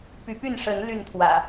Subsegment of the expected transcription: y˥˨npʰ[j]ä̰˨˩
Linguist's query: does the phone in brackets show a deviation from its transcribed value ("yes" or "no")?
yes